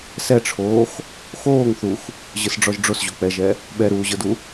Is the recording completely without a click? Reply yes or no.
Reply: yes